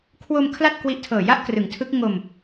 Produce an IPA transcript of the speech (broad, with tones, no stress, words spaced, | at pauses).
kʰwo˧m kʰla˥˩t̚kwi˦˥ʔtʰɤː˨˩ ja˥˩ʔkrɯ˩˦ŋtʰɯ˦˥k̚ ŋo˧m